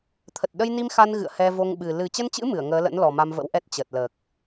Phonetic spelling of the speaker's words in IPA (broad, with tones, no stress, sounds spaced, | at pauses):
t̪ʰ ə˨˩ t̚ ɗ ə˧ j n i˧ m x a˧ n ɣ ɨ̰˧˨ ə̯ h ɛ˧ v o˧ ŋ ɓ ɨ˨˩ l ɨ˨˩ t͡ɕ ə˧ n t͡ɕ ɨ̰˧˥ m ɨ˧˩ ə̯ ŋ əː˨˦ l ə̰˧˥ n l ɔ˨˩ m a˧ m v ə̰˧˥ w ʔ ɛ˦˥ t̚ t͡ɕ ə˨˩ t̚ l əː˨˩ k̚